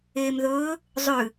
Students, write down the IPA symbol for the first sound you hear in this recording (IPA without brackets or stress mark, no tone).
eː